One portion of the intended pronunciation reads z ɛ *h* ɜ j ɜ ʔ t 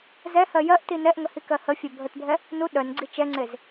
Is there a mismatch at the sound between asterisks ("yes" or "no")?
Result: no